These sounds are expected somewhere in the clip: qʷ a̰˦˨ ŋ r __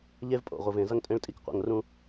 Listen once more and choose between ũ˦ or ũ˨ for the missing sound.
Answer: ũ˦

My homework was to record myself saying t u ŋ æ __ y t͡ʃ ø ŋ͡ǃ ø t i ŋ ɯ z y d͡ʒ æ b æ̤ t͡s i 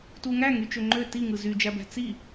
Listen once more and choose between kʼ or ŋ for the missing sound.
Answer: ŋ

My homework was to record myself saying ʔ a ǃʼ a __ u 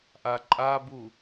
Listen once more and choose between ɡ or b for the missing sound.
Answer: b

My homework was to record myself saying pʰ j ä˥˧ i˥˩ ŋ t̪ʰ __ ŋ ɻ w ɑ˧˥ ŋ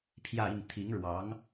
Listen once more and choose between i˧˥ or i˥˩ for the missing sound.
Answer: i˧˥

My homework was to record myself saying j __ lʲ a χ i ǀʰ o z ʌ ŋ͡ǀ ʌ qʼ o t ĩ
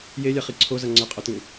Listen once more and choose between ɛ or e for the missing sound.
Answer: e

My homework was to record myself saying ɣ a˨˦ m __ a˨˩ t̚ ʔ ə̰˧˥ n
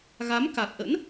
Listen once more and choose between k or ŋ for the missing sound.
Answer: k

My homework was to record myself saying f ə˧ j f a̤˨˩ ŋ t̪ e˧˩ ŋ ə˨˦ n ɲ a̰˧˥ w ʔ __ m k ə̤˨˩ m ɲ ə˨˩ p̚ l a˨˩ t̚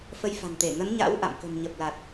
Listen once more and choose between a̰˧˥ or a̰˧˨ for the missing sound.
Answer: a̰˧˨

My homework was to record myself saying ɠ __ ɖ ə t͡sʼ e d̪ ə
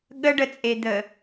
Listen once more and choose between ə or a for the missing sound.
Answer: ə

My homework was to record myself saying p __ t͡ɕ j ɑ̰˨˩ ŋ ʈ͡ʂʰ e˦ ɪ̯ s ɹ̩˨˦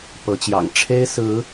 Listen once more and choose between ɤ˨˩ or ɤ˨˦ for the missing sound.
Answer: ɤ˨˦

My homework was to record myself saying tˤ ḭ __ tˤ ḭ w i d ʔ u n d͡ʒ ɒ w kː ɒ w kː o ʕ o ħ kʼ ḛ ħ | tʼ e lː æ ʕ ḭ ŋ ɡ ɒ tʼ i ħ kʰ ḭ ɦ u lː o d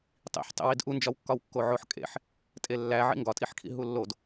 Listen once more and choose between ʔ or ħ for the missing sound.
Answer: ħ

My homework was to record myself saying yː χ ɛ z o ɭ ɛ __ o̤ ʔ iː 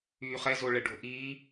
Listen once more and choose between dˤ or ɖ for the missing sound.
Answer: ɖ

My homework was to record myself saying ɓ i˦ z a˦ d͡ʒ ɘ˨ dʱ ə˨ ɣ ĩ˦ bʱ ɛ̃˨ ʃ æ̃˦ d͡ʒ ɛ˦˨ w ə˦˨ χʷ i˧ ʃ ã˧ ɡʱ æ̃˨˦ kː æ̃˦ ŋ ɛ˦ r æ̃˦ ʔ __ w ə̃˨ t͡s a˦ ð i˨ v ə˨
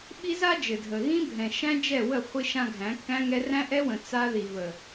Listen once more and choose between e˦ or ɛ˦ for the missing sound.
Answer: ɛ˦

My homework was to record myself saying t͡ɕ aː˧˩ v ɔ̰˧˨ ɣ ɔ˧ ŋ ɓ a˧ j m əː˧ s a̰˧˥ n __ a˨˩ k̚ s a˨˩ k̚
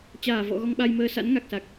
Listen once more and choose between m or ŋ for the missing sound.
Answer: ŋ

